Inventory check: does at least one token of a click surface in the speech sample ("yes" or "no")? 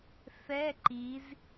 yes